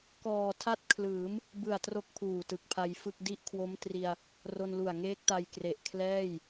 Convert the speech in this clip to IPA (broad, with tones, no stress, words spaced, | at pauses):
kɔː˨˩tʰa˥˩t̚kʰlɯː˩˦m | bɯ˨˩a̯tro˦˥k̚ pʰuː˨˩tɯ˨˩k̚pʰa˧jfɯ˥˩k̚ di˦˥ʔkʰwo˦˥mtri˧a̯ | ro˧nlu˨˩a̯ŋeː˦˥k̚ta˧j kre˨˩ʔkʰlɛː˥˩j